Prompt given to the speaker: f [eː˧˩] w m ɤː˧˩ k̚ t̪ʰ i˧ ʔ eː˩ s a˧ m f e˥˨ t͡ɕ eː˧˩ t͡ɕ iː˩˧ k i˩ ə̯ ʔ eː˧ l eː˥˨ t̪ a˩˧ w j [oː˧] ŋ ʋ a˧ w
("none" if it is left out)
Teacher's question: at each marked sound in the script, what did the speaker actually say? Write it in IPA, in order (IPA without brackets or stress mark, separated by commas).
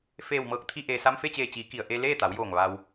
eː˧˩, oː˧˩